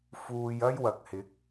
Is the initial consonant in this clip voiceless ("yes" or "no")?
yes